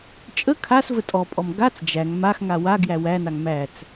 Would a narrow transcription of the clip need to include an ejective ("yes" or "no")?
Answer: yes